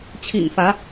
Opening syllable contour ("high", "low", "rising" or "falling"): low